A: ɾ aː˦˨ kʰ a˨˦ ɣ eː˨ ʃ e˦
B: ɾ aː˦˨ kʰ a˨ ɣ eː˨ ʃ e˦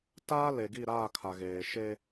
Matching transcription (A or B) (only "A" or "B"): B